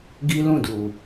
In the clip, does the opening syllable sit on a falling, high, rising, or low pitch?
high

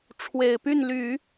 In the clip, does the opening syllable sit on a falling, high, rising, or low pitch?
low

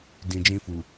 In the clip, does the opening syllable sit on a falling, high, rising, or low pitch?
low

